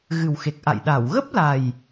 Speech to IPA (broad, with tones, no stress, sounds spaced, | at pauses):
ɣ ɨ˨˩ w x e˨˩ k̚ ʔ a̰˧˨ j ɗ a˧˩ w ɣ ə˦˥ p̚ l a˨˩ j